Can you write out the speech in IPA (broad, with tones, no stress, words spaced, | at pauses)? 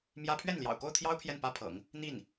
mjä˥ pʰɥɛ˥˩nljɑ̰˨˩ʊ̯ko˥˩ʊ̯t̪ʰjɑ˥ʊ̯ pʰjɛ˥˩npä˥pʰɤ̰˨˩˦ŋ | n̪i˥˩n